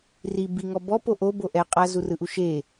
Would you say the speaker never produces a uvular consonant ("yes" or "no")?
no